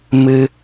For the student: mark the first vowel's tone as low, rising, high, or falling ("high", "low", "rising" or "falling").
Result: high